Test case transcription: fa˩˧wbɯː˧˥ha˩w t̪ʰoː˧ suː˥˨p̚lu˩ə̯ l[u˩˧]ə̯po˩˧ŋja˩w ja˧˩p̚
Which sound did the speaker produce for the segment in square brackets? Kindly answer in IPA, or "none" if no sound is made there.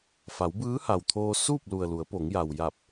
u˩˧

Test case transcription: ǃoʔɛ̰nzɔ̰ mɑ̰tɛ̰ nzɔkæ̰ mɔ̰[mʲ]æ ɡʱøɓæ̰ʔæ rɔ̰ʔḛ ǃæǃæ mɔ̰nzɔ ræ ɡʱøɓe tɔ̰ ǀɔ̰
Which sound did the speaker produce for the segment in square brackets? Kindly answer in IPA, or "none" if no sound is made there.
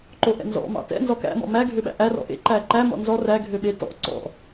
m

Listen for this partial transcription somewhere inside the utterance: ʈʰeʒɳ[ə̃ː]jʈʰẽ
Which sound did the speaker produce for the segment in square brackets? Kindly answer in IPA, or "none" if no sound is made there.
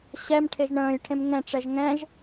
ə̃ː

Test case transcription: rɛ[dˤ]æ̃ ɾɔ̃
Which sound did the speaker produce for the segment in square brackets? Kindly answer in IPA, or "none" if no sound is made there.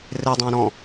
dˤ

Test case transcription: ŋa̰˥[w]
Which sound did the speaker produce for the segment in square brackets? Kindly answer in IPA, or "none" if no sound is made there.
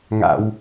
w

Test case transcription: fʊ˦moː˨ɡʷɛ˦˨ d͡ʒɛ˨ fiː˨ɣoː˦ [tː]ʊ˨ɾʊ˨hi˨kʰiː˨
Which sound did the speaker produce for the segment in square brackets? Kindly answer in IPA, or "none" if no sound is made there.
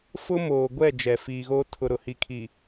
tʰ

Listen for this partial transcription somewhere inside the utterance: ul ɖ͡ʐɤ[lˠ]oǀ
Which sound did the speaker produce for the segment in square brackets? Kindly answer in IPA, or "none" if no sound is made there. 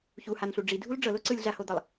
l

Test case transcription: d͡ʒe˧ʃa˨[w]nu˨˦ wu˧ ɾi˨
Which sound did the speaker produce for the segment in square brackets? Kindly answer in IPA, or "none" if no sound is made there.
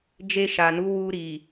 none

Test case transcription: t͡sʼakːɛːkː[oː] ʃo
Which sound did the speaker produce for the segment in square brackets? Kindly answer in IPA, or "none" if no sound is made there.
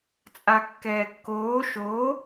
oː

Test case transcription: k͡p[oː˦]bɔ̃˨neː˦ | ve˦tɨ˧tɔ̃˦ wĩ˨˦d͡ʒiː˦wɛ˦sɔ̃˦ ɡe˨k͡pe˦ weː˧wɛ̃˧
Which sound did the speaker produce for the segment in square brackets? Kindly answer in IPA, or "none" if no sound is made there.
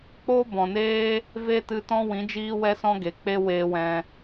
oː˦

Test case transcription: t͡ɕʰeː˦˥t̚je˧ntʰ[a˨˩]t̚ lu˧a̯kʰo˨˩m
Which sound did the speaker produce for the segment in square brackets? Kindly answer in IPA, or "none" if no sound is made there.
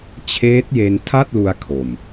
a˥˩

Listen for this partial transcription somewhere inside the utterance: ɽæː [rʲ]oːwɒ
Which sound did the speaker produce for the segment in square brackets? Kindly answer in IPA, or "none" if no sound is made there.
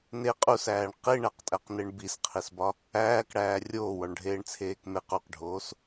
rʲ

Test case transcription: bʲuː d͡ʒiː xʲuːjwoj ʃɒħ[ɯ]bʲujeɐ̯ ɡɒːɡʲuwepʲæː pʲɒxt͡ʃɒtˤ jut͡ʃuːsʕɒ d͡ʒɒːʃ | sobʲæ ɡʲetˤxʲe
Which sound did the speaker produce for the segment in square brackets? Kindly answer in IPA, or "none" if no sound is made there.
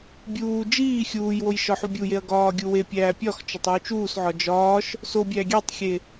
u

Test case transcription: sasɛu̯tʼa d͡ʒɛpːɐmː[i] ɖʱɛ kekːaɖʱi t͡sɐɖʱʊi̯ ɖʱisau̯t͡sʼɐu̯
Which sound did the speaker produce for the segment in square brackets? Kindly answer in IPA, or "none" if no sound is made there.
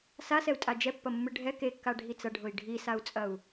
ɨ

